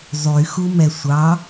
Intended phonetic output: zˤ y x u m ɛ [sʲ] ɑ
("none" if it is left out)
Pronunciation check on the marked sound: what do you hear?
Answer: sʷ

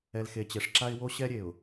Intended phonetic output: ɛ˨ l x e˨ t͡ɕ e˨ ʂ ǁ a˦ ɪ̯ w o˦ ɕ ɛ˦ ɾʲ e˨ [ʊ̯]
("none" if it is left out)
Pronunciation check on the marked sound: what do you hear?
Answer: ʊ̯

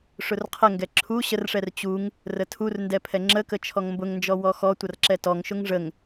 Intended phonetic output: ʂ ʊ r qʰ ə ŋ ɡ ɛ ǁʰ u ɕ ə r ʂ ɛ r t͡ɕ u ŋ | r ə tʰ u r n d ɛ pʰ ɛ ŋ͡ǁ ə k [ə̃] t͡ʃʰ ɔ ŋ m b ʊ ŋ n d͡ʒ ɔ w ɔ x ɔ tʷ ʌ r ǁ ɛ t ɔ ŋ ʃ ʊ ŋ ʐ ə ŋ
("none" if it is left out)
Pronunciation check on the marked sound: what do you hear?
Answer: ə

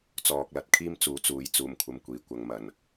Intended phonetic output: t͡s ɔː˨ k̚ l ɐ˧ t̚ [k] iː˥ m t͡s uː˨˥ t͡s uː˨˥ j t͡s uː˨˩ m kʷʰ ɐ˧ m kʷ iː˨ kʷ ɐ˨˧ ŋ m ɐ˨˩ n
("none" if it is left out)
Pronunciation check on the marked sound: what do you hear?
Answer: kʰ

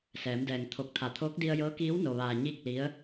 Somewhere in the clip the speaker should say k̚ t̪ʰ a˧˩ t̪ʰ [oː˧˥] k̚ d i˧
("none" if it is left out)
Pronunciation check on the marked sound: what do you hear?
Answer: oː˧˥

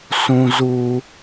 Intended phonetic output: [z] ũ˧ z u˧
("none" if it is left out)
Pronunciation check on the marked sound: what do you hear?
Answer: s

